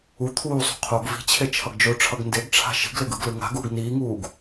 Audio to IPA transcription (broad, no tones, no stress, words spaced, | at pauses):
u t̪ʰuːsˤo̤ qʰoɡ vi̤t͡ɕʰe t͡ʃʰʌɡd͡ʒoʈ͡ʂʰʌɡ ndeɡʈ͡ʂʰa̤ ʃi̤ɡleɡ ɯɡlɯ ŋa̤ɡuːɡ niːŋuːɡ